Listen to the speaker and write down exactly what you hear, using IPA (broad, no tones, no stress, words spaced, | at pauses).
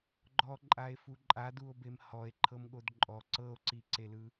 ɡ͡ǃɔǃʼae̯fu ǃʼaduo̯bem hɔe̯ǃʰɤmɠod ǃʼɔ ǀɤo̯ǀiǀelɯ